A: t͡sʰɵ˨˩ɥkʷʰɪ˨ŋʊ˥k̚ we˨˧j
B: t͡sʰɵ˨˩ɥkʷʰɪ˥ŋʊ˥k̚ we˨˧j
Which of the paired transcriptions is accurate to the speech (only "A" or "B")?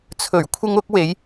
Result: B